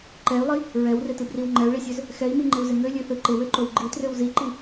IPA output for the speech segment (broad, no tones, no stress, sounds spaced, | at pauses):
ǃ ɛ y̯ lˠ i | ɹ ɛ w r ɪ t ɯ b r i w ŋ͡ǃ ɛ u̯ ɭ i sʲ ø z | x ɛ i̯ m i ŋ͡ǃ ɪ u̯ z ɪ ŋ ø lʲ ø θ ɯ ǃ ɪ w ø ǃ o w ɡ͡ǃ i t r ø w z i ǃ i